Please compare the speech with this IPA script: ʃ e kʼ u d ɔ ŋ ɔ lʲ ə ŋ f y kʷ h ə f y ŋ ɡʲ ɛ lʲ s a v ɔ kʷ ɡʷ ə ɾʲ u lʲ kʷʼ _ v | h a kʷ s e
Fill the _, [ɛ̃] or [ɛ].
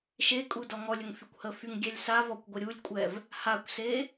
ɛ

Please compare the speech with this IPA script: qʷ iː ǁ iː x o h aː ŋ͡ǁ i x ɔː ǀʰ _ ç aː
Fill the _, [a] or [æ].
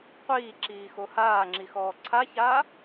a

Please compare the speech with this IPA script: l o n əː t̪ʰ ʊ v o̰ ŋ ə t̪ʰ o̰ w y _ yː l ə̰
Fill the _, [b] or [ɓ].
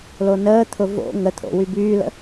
b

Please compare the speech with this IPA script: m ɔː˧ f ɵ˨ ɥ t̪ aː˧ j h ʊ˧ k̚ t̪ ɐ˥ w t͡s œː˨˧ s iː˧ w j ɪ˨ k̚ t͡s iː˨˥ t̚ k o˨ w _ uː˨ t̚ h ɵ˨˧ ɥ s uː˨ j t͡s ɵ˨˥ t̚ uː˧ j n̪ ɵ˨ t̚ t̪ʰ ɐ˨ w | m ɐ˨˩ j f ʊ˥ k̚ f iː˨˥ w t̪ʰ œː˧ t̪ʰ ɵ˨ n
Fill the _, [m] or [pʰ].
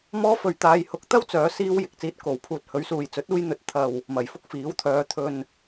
pʰ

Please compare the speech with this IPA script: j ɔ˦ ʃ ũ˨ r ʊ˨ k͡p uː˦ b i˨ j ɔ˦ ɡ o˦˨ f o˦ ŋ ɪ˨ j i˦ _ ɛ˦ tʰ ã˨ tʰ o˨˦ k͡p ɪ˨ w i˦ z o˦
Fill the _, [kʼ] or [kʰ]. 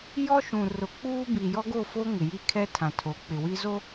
kʰ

